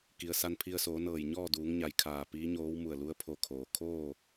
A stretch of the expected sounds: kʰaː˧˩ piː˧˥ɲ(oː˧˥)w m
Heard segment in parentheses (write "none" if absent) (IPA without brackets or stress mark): oː˧˥